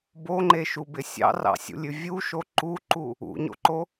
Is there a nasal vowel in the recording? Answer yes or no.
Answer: no